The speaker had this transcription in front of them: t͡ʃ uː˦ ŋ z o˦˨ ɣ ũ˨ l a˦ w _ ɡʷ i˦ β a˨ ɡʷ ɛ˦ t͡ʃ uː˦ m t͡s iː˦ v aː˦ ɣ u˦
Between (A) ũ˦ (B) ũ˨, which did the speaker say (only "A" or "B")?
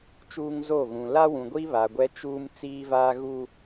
B